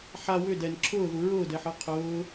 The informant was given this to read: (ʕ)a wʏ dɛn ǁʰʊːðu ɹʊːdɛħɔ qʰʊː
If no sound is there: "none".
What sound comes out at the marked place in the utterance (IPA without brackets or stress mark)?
ħ